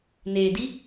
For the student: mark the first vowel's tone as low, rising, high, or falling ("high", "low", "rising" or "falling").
low